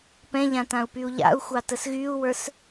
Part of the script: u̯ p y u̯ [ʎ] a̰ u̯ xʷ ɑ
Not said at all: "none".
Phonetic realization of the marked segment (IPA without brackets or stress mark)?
ʎ